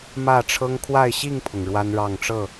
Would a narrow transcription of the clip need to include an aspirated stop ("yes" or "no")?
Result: yes